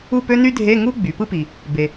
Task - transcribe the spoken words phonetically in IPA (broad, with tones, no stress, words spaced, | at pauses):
u˥˨pø˥ny˥dʱe˧˥˧ ŋu˥ ɡ͡by˩˧pɯ˥pi˩ | be˩